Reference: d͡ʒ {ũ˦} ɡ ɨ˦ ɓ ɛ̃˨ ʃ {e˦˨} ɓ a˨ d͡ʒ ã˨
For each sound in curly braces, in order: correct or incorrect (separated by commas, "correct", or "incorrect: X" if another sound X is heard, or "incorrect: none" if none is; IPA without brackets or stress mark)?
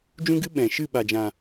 correct, incorrect: ɨ˦˨